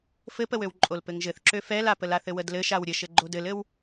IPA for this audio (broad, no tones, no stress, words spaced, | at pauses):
fɘpəwøw ǃʼolpɘŋʒɘθǁø fɛlapəlaθ ɘwədlɘ ʃawɾʲəʃɘ ɡ͡ǃodɘlɘw